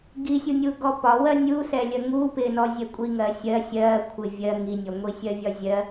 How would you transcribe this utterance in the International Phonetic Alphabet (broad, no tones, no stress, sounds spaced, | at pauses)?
ɡ i sʲ u nʲ u ɡ ɔ p ɒ w ɜ nʲ u s ɛ lʲ ɜ ŋ u p ɪ n ɔ zʲ ɛ kʷʼ i ŋ ɜ sʲ ɜ sʲ ɜ kʷʰ ɪ vʲ ɜ ŋ i nʲ ɔ ŋʷ i sʲ ɜ vʲ ɒ zʲ ɜ